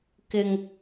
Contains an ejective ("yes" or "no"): no